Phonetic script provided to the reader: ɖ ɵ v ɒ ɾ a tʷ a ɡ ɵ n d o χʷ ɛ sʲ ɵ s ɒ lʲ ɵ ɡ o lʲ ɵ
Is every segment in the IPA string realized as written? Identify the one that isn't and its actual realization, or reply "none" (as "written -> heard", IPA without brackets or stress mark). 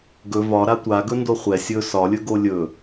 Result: ɖ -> ɡ